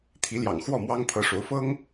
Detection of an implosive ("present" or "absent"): absent